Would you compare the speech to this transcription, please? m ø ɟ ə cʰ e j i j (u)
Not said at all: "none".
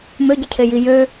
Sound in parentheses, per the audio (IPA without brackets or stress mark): ø